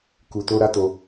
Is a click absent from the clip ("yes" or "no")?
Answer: yes